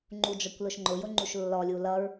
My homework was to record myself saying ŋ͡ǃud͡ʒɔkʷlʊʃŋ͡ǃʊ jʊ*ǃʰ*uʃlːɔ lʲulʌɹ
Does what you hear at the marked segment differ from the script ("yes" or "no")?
yes